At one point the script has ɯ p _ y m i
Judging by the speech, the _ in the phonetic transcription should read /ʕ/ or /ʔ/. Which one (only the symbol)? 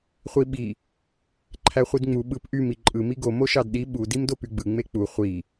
ʔ